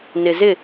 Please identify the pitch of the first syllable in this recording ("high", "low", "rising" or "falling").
low